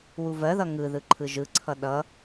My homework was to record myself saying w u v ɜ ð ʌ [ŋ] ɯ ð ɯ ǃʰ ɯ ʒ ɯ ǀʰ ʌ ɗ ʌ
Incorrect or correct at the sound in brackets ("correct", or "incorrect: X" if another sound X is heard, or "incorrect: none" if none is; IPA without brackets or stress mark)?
correct